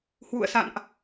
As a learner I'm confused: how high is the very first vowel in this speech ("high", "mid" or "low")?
high